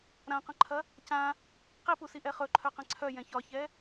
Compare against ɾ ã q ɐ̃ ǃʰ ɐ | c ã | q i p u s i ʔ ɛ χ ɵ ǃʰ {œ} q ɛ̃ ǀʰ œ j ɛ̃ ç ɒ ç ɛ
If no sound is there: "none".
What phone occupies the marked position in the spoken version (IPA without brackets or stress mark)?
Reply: œ